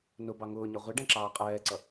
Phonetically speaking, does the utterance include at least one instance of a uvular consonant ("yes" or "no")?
yes